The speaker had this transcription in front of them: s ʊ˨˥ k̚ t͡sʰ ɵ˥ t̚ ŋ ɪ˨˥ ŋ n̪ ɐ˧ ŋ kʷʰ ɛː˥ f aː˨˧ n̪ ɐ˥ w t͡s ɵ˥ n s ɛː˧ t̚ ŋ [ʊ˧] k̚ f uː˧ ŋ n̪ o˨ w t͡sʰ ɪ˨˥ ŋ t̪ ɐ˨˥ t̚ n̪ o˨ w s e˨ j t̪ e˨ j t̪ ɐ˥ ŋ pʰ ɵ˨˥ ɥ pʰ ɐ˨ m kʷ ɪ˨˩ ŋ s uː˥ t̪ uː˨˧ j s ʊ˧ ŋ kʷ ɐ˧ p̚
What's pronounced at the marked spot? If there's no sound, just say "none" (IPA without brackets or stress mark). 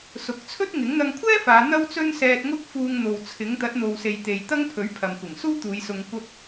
ʊ˥